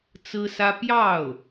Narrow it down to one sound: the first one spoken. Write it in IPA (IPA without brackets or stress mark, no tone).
t͡s